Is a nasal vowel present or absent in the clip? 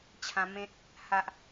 present